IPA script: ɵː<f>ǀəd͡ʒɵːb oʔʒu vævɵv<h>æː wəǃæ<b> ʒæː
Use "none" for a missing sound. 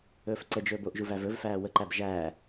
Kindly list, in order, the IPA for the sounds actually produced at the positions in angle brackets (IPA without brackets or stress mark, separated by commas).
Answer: f, f, b